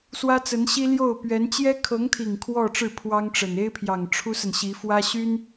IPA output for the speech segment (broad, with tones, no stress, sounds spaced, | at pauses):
s w ä˥ t͡s ə˧˥ n ɕ i˥ l j o˥˩ ʊ̯ p ɥ ɛ˧˥ n t͡ɕ j ɛ˥ kʰ ɤ˧˥ ŋ t̪ʰ i˨˩ ŋ kʰ w ɔ˥˧ ʈ͡ʂ ɻ̩˥˩ pʰ w ɑ˥ ŋ ʈ͡ʂ ə˨˩ n e˥ ɪ̯ pʰ j ɑ˨˩ ŋ ʈ͡ʂʰ u˥ s ə˨ n ɕ i˧˥ f w ä˥ ɕ y˥ n